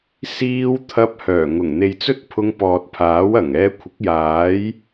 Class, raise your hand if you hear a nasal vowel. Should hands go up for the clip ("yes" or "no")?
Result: no